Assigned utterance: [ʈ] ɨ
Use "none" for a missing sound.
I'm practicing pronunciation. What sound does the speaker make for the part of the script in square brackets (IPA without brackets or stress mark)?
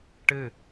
ʈ